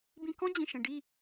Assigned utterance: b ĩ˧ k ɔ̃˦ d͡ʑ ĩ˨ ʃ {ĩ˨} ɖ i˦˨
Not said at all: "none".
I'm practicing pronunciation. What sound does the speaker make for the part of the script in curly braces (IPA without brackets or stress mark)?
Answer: ẽ˨